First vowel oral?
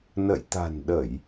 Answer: yes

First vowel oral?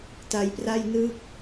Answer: yes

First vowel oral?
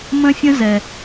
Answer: no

